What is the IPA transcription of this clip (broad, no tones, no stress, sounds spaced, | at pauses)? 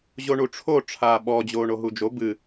ʑ o ɳ u ʈ͡ʂʰ o ʈ͡ʂʰ aː ɓ ɔ d͡ʑ oː ɳ o ɦ u d͡ʒ o b ɨ